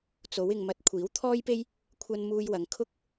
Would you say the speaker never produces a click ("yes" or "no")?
yes